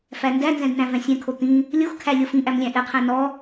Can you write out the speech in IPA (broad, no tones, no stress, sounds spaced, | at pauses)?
f æ n d æ n z ɛ̃ d n æ̃ v ɛ̃ sʲ ɛ̃ kʰ o t̪ ĩ | lʲ o x kʰ æ lʲ ɤ f ĩ ʔ æ m lʲ æ̃ ʔ ɛ qʰ æ̃ n ɔ